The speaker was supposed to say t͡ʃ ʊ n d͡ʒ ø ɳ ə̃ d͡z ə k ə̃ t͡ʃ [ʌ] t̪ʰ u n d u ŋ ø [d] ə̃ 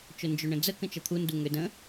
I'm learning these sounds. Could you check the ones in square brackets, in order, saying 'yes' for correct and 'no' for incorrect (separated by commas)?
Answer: yes, yes